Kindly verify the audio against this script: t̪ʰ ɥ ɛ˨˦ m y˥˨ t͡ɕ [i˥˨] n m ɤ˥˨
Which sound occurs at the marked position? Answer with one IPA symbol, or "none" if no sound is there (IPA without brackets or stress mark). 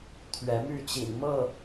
ḭ˨˩